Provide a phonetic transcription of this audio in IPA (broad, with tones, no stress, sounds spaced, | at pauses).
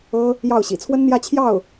ɤ˥ | j ɑ˥˩ ʊ̯ ɕ ḭ˨˩ t͡sʰ w ə˥ n n̪ j ä˥˧ t͡ɕʰ j ɑ˥˩ ʊ̯